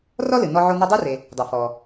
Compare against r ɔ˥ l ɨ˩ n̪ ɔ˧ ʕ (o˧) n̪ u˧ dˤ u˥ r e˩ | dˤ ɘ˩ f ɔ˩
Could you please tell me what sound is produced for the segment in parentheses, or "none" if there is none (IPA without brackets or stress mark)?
o˧